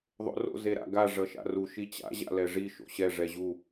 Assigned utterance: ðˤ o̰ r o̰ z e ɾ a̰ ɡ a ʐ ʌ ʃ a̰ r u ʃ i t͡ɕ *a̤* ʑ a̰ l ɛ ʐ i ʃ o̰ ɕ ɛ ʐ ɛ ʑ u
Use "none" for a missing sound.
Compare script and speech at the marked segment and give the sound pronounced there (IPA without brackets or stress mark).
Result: a̰